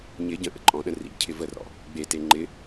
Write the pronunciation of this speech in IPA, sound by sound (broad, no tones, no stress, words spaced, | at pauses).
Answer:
ɲɪ ɟə̃ʔə̰ ǃʼɔ̃ɗə̃ rḭcʰɪ vərɔ̰ | ɡ͡bete ŋ͡ǃɪ